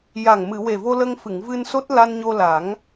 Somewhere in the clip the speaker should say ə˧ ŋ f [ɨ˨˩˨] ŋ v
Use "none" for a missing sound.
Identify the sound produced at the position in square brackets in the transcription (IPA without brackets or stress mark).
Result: ɨ˨˩˨